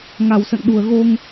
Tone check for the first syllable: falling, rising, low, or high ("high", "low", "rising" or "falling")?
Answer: low